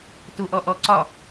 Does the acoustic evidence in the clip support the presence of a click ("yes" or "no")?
yes